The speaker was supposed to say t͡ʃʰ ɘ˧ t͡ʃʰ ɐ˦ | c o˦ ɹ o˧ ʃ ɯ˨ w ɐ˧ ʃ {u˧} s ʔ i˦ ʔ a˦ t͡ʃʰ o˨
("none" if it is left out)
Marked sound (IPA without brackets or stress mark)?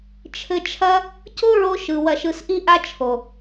ɯ˧